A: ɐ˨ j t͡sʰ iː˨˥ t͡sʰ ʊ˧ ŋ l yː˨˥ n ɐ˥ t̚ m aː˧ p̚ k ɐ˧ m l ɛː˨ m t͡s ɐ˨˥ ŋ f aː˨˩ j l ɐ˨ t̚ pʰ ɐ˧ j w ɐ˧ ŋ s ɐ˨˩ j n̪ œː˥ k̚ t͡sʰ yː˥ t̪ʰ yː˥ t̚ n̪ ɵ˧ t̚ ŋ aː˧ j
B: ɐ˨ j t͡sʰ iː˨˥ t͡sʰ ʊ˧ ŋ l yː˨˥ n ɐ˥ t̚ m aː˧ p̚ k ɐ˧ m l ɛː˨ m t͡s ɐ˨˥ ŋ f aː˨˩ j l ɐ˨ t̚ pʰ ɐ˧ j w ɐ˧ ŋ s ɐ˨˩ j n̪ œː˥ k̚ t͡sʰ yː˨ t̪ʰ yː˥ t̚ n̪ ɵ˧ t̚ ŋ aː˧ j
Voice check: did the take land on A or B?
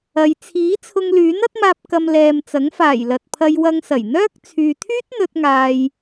B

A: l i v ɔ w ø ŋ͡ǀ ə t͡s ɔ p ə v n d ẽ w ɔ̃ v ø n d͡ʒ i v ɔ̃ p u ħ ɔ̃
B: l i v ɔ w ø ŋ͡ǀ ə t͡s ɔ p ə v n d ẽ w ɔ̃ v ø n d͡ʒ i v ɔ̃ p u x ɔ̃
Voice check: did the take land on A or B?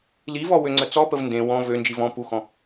B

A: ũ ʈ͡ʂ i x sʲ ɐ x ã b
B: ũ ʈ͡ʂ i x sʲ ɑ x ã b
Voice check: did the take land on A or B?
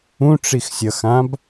A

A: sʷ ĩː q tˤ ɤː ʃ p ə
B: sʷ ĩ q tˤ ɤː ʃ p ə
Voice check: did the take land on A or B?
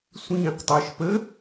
A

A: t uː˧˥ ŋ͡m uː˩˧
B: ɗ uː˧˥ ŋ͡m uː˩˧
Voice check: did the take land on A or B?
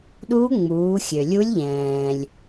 B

